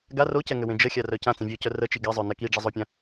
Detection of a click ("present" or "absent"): absent